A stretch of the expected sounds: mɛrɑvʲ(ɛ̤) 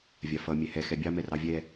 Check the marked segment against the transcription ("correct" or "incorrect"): incorrect